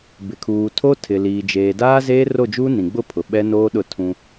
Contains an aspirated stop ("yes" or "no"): yes